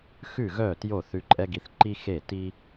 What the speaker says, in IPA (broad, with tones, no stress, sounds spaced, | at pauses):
x ʉ˥˩ ɣ œ˥˩ t j o˥˩ θ ʉ˧ ǃʼ ɛ˥ ɡ i˧ θ ǃ i˥ x e˥˩ t i˥